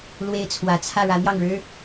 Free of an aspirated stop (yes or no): no